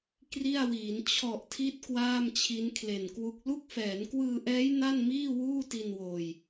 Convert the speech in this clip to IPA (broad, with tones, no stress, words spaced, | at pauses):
kri˥˩a̯wiː˩˦n t͡ɕʰɔ˨˩ʔtʰi˦˥t̚ kwaː˥˩mt͡ɕʰi˦˥nkʰle˨˩nkwu˦˥k̚ lu˦˥k̚fɛː˩˦nkwɯː˧ʔɛː˦˥j na˥˩nmiː˥˩wuː˥˩ ti˧nwoː˨˩j